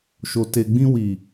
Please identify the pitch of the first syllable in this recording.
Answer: low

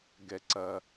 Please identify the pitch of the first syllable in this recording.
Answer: low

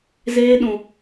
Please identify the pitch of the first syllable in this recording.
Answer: high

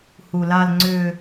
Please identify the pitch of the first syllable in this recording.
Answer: low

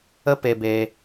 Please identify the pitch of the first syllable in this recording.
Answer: high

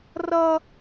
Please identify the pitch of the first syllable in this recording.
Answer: high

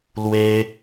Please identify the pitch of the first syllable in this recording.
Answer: high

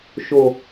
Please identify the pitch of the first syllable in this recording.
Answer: low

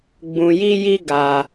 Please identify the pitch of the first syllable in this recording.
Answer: low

